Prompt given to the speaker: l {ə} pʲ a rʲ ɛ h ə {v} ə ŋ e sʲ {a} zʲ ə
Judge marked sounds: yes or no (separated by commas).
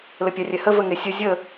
yes, yes, no